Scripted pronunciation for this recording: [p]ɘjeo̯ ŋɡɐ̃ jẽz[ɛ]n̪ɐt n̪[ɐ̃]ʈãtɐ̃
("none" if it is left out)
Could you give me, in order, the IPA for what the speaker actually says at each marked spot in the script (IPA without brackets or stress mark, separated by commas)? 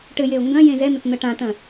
ʈ, ɛ, ɐ